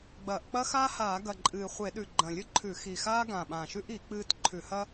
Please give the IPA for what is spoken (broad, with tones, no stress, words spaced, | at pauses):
ɡ͡bɐː˧˩˧ʔ k͡pɐ˥ xaː˥haː˧˩˧ ɡɐ˨˩ǃʼɨː˨˩ χʷe˧˩˧ɗʉ˨˩ ɡ͡ǃɐ̃˨˩lʲɨ˥ǃʰʉ˧˩˧ xi˨˩xaː˥ ɡã˨˩ɓã˨˩ʃʉ˥ʔi˧˩˧ k͡pɨː˥t ǃʰʉ˧˩˧hɐ˥